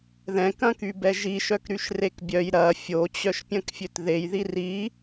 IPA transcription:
ðɛ̃kɐ̃ky bɛʒiʃœk ɾyʃrekbʲœj ɾɐ fʲot͡ɕœʃ pʲɐ̃kfʲøtðejði ri

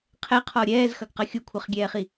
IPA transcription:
qʰɛqʰɔ ɾʲɛːzxɐɡqɐ xʲukʷʰɐχɡʲɛːχi

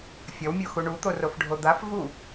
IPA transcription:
fʲʌwmʲoxu ɳut̪orofɖʱo d̪af vu

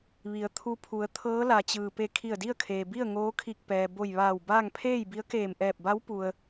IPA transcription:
ʋi˩˧ə̯ t̪ʰu˧pʰu˩˧ə̯ t̪ʰɤː˧˥la˩t͡ɕɯː˩pe˧˩ kʰi˧˩ə̯di˥˨ə̯kʰeː˩bi˥˨ə̯ ŋoː˧˥kʰi˧˩k̚pɛː˩ bo˧˩jʋaː˧˩wbaː˥˨ŋ pʰeː˥˨jbi˧˥ə̯keː˧˩mʔɛː˧˩p̚ ba˧˥wpu˩ə̯

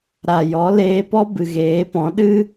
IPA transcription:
ɾa˨jɔ˨˦ leː˧pɔ˦ bɨ˨ɣeː˨˦pɔ̃˨˦ ɗɨ˦

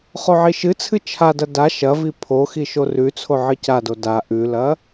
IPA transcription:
χoʕiʃɨt͡sʰɨ t͡ʃʰadɐ da ʃɐvi pʰoxi ʃorʉt͡sʰo ʕɨcado da ʔʉlɐ

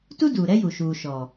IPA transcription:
tu˦duː˨ ɾɛ˦ju˨ ʃuː˨ ʃɔ˨

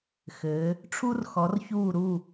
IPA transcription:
xɘ˨˦ | ʈ͡ʂʰu˦rxɔ˨˦rçuː˦˨ɾu˦˨

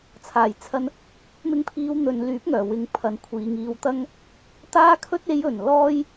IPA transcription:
t͡sʰaː˨˩jt͡sʰɐ˧n | mɪ˧ŋpʰiː˨˧wn̪ɵ˨n lyː˨˥p̚ŋœː˨˩wɪ˨˧ŋ pʰɐ˨˧nkʷʰiː˨ŋiː˧w t̪ɐ˥ŋ | t̪aː˧kʰɵ˧t̚e˨˧jɵ˨˩n lɔː˥j

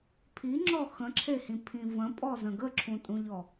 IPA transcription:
pʰiŋ͡ǁɔ xə̃ǁʰehĩpʰĩ və̃pʼɔzə̃ ɡəǁʰũtʼũʎɔ

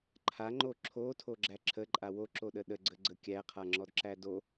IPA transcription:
ǃʰaŋ͡ǃo ǁʰotʰoɡ͡ǁæ ǁʰəǃʼa woǁoɗə ɗəɡ͡ǀəɡ͡ǀə kʲæqʰaŋ͡ǁɔdǁæ do

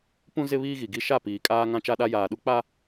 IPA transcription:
pũ˦ zɪ˦βiː˦ɣi˨ɡi˦ ʃa˦˨piː˨kʼaː˦ ŋã˦t͡ʃa˦ɗa˦ jaː˨ɗu˦k͡pa˦

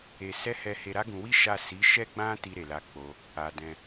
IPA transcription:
e˧sɛ˦ hɛ˧he˧ ɾa˦ɡũ˧wi˦ ʃa˦˨ si˨˦ʃɛ˦ɡ͡bã˦ti˧ ɾe˧la˦k͡po˦ | a˧dɛ̃˧

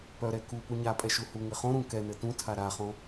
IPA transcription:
pœɾɛ ku puɲapʼɛ ʃuhuŋɘ χõɾũ kɛnɘ tũtʰa ɾaχõ

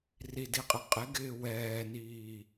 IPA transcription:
ridiqʼɪ qʼɪɡɪː wɛːniː

